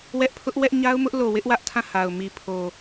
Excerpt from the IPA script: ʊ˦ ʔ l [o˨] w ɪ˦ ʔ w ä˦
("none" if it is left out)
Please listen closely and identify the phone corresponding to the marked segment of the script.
o˨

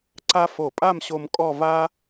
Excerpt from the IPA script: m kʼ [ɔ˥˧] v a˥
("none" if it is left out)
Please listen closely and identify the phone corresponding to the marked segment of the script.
ɔ˥˧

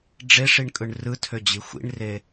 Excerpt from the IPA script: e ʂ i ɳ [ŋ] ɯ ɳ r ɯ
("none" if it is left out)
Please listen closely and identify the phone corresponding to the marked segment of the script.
kʼ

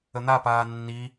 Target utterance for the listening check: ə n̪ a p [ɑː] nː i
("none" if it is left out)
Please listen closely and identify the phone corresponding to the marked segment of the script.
aː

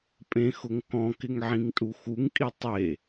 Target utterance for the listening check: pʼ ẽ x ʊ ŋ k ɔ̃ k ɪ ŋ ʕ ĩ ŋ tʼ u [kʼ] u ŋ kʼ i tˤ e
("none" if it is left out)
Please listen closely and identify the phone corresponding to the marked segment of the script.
x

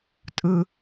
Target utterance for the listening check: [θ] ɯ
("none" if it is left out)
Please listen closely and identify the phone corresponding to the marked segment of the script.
tʼ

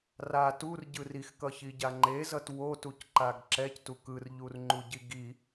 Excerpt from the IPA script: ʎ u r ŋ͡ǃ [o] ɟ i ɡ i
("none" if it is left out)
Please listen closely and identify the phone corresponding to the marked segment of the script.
u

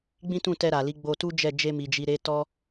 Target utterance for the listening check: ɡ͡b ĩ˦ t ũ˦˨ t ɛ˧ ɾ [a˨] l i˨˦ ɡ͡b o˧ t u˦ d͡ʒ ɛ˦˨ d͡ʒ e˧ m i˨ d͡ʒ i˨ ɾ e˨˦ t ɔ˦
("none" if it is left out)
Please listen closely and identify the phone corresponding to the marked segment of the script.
a˨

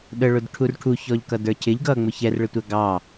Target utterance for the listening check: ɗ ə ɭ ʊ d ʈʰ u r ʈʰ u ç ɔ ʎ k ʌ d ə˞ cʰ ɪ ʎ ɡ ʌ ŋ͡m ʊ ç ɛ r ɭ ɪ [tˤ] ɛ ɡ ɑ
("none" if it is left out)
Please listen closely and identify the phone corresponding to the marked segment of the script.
tʷ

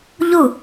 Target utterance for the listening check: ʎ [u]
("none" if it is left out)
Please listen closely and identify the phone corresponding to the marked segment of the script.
u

